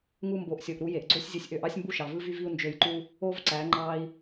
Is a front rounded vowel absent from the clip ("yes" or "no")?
no